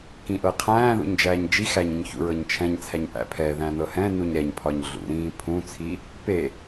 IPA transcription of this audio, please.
k ĩ ʔ ɤ qʰ æ̃ː ð ṵ ɲ d͡ʒ æː ɲ d͡ʒ i x æ ɲ ĩ ɲ ç ṵ ɹ ɤ ɲ t͡ʃʰ ɛ̃ ɲ t͡sʰ æ ɲ ʔ æ̰ pʰ ɛ ð æ̃ n ɤ h ɛ̃ n u ɲ ɾ ɛ ɲ pʰ ɒ ɲ ɮ ṵ ɾ ĩː pʰ ũ t͡sʰ i | p e

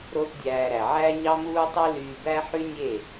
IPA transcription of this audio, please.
ɾ o˦ θ dʲ æː˧ ɾ æ˨ ʕ æ˦ ɲ ɑ˦ m uː˦ tˤ u˦ l yː˧ b æ˦ ħ y˦ nʲ e˦˨

